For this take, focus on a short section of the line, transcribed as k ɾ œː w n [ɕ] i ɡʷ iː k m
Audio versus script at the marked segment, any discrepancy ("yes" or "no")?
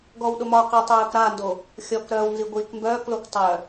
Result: yes